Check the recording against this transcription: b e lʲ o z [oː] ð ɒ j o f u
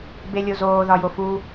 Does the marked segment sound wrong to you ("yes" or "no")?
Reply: no